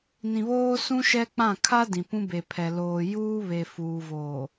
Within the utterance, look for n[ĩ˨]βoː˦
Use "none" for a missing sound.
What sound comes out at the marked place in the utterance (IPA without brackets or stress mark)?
ĩ˨